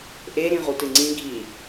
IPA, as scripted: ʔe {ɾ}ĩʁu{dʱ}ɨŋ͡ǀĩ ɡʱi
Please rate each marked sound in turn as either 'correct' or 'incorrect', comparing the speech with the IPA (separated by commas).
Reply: correct, incorrect